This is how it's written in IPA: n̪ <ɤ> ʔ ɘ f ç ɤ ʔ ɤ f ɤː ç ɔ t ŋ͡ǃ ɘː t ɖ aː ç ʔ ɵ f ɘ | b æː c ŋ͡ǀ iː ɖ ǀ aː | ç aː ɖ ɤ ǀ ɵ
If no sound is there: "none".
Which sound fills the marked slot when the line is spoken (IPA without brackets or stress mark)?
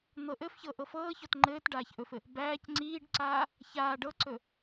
ɤ